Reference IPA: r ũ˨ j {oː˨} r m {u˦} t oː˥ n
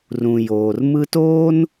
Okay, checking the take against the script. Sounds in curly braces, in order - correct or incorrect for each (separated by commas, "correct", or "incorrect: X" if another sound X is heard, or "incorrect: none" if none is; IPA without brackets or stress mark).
correct, incorrect: ɯ˦